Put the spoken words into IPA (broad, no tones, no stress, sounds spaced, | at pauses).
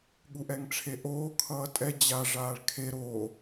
ɠ u ʔ ɛ ŋ ʈ͡ʂʰ e ʔ oː kʰ ʌː tʼ ɛ d͡ʑ a ʐ aː ɭ kʰ e ɾ o